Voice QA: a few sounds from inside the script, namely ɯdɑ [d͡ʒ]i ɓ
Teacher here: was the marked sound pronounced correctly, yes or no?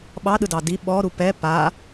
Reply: no